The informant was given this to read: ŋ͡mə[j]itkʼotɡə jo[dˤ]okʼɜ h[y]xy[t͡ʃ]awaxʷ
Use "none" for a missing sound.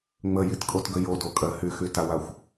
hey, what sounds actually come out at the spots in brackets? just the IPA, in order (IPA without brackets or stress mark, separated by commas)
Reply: j, d, y, t